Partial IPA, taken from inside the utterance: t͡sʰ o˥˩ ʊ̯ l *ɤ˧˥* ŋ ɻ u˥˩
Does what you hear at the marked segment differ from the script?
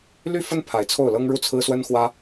yes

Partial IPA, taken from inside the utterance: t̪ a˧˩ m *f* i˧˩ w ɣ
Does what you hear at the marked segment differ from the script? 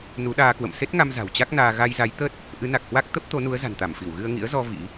no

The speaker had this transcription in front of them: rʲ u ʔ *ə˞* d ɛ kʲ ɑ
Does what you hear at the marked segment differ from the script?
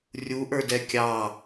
no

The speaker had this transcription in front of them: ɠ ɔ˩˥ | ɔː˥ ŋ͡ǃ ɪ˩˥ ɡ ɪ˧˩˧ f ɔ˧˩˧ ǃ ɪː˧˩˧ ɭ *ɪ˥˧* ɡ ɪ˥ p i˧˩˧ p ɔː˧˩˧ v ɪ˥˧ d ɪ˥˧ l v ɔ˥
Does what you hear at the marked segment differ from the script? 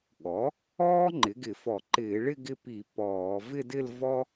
no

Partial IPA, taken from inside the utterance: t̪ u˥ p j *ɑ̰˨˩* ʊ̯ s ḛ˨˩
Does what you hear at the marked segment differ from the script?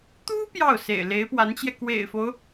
yes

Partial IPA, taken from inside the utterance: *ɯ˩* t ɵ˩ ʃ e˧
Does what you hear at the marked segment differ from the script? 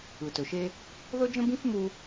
no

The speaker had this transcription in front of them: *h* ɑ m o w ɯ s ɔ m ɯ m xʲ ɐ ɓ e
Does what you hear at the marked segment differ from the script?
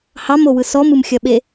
no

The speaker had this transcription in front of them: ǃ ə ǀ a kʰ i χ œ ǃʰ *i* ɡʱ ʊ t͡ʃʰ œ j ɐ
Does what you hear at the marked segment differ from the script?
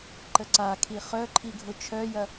no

